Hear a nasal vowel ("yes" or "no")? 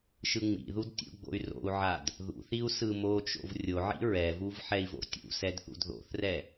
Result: no